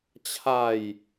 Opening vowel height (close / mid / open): open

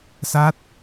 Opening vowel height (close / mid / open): open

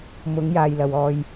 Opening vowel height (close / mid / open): close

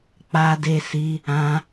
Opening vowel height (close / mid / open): open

